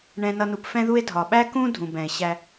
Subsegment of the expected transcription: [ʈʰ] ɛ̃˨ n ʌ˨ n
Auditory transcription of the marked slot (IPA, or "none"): ɳ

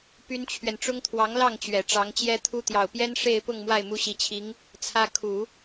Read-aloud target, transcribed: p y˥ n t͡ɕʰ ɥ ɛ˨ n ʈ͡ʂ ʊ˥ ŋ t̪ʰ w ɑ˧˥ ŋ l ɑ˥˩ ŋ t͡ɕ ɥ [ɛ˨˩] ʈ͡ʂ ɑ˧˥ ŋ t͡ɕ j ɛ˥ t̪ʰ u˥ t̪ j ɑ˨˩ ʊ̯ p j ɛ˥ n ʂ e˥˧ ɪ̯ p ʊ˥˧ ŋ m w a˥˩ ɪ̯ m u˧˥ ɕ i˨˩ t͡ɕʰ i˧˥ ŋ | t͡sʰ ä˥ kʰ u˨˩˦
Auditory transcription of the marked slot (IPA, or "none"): ɛ˨˩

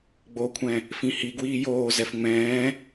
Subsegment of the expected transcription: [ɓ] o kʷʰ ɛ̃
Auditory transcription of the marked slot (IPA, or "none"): ɡ͡b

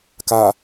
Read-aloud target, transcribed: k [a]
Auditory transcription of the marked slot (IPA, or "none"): a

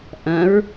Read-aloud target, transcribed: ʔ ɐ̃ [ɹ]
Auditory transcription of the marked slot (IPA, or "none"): ɹ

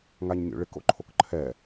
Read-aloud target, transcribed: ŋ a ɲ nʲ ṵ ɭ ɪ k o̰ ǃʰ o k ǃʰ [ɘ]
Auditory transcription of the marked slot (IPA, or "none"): ɛ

